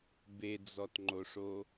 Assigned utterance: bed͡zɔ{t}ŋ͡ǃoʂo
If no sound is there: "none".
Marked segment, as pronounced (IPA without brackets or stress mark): t